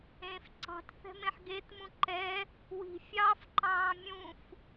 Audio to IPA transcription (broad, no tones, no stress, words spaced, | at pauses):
ẽf ǀɑ̤tθɛ̤mẽħ ɡetmũ ǃɛ | wi̤fʲɑːf ǃɑ̃ːmʲũf